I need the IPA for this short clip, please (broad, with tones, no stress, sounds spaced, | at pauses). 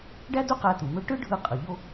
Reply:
ɖ æ˥ d u˥ q æ˧ t̪ u˩ m ø˥ ʈ ɯ˥ ɖʱ ɯ˧ qʼ ɯ˩ ʎ o˥